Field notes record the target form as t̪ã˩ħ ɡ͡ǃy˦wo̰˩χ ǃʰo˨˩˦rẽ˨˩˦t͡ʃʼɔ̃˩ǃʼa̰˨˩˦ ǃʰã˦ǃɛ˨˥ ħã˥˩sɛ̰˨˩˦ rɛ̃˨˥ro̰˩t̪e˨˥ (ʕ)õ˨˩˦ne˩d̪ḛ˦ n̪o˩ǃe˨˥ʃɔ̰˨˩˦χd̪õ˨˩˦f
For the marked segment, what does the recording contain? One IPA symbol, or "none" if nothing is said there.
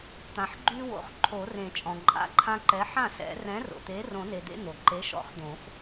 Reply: r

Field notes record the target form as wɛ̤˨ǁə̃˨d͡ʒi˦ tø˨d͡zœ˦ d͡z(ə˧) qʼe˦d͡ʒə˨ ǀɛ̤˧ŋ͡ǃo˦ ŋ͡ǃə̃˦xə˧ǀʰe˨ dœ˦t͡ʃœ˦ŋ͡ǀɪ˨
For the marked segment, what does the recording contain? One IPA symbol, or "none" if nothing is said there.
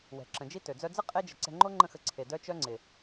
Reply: ə˦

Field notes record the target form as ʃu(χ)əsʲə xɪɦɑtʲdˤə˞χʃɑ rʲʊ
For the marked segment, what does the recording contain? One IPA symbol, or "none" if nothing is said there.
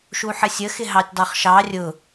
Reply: ħ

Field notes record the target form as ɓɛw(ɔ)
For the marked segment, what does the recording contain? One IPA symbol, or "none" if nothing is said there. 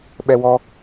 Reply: ɔ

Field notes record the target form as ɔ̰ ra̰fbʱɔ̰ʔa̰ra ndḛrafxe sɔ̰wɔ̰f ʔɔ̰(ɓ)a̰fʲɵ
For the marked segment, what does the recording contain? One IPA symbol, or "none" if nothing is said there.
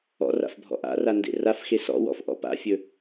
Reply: p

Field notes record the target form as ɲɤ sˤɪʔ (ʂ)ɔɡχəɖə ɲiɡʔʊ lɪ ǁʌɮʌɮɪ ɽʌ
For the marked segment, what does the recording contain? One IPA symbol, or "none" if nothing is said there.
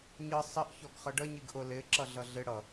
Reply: ç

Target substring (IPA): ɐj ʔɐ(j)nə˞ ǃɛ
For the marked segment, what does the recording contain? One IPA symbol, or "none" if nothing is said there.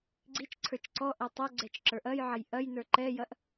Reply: j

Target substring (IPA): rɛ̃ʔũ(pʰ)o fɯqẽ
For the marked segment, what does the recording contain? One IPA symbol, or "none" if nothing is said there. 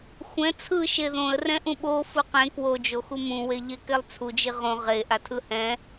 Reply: ɓ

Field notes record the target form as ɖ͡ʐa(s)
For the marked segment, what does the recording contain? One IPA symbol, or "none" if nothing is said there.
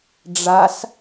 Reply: s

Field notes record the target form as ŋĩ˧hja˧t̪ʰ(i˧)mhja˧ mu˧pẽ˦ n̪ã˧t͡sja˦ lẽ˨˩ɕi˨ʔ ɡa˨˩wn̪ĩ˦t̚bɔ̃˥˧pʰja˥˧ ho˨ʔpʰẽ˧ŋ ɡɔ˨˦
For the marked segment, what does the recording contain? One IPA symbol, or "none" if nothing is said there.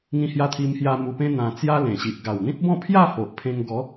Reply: i˧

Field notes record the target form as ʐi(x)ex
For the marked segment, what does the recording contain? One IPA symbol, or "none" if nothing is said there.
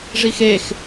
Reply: x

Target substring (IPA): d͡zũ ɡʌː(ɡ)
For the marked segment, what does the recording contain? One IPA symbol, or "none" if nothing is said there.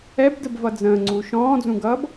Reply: b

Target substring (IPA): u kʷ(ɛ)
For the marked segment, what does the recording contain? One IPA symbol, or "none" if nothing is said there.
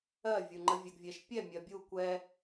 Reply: ɛ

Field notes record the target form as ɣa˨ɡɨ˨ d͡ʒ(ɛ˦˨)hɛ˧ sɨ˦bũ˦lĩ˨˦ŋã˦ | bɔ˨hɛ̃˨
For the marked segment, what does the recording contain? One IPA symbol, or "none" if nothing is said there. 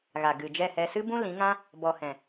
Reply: ɛ˦˨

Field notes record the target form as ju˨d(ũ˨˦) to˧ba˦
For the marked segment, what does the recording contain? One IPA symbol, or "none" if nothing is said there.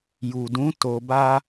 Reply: ũ˨˦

